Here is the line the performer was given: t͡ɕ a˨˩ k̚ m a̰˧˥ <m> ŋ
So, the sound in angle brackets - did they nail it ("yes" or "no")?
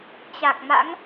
no